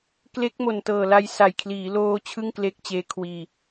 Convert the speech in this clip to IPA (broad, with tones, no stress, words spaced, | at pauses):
kle˦˥k̚mo˨˩ntɤː˨˩la˧j sa˨˩jkʰliː˩˦loː˧ t͡ɕʰɯ˥˩ŋkle˦˥k̚t͡ɕeː˦˥kʰwiː˧